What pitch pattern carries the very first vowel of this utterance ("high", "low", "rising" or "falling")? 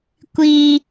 high